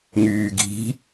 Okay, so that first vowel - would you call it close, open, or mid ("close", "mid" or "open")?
close